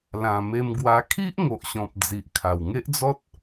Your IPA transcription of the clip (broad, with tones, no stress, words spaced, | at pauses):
lã˨˩ me˧m ɡwa˧ kʰi˦ʔ ŋo˨ʔɕɔ̃˨p̚ d͡zi˨ʔkʰa˨˩w ŋe˦ʔd͡zɔ˦t̚